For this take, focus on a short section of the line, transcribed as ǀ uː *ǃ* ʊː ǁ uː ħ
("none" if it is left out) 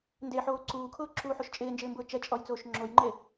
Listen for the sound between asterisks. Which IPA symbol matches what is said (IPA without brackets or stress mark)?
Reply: kʰ